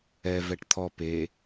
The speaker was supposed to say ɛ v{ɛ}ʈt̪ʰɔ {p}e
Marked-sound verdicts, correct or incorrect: correct, correct

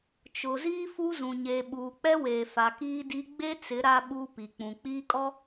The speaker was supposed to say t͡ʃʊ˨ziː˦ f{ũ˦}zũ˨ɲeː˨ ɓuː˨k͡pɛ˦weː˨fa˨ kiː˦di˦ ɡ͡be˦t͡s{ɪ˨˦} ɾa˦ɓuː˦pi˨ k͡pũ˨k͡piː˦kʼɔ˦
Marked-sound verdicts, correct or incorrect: incorrect: u˦, correct

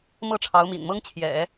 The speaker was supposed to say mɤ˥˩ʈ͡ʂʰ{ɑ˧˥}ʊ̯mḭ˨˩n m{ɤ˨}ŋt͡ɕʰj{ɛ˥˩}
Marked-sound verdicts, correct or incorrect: correct, incorrect: ɤ˥, incorrect: ɛ̰˨˩˦

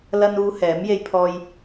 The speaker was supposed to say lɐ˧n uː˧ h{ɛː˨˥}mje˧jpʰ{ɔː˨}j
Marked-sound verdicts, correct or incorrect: correct, incorrect: ɔː˧

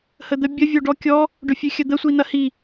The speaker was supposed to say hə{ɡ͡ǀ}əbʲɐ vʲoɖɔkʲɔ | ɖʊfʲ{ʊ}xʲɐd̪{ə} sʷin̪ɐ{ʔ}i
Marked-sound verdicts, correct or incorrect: incorrect: d̪, incorrect: ʉ, correct, incorrect: h

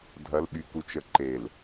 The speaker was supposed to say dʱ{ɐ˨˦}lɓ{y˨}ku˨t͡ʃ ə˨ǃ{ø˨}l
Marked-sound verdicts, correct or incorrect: correct, correct, incorrect: e˨

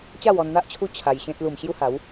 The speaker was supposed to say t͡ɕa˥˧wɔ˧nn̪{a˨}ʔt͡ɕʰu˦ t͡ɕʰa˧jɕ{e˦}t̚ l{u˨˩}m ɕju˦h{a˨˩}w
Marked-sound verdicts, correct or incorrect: incorrect: a˦, incorrect: ẽ˦, correct, incorrect: a˨˦

